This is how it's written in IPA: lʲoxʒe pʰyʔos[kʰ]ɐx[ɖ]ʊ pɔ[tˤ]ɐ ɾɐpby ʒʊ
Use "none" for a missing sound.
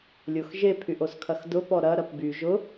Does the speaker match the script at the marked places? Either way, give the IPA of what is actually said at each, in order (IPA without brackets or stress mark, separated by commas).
kʰ, d, ɾ